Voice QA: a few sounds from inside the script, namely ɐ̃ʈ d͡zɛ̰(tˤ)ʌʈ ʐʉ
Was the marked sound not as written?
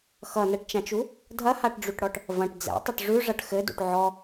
no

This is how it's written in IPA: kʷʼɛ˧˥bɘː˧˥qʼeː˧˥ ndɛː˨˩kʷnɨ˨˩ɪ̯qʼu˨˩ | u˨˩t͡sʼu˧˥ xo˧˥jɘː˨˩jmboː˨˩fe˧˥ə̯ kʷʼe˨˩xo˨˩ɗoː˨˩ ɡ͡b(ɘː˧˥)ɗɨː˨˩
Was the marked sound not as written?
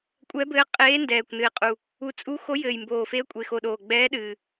yes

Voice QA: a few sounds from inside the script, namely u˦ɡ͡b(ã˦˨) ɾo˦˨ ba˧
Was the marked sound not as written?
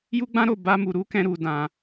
yes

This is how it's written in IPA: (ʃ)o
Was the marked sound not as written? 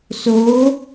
yes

